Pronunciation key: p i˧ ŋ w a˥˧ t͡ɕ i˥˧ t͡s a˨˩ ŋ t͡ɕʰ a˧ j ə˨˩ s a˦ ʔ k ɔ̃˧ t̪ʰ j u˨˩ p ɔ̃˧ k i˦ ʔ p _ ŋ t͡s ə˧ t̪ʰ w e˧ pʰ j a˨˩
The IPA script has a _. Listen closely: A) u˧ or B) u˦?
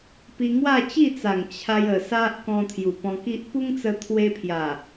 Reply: B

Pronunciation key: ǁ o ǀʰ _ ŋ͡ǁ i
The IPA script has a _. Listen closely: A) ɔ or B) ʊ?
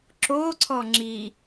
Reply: A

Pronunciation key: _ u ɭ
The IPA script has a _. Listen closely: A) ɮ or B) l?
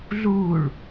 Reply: A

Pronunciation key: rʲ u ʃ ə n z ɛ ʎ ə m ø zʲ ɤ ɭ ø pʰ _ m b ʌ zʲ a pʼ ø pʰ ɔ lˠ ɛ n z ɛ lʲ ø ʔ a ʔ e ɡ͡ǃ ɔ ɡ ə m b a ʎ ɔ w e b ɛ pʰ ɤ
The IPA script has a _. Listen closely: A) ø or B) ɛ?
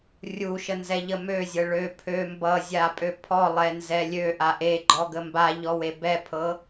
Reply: A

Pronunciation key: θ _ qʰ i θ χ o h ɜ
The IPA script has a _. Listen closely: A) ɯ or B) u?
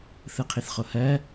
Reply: A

